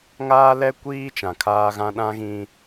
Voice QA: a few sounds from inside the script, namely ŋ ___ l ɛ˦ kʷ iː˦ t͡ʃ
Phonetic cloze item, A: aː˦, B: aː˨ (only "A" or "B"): A